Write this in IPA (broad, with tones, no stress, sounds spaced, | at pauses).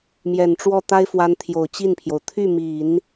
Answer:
m j ɛ˨˩ n ʈ͡ʂ w ɔ˥˩ t̪ a˥ ɪ̯ f w a˧˥ n t̪ʰ j o˨˩ ʊ̯ t͡ɕ i˥˩ n pʰ j o˩ ʊ̯ t̪ʰ y˥˩ m i˨˩˦ n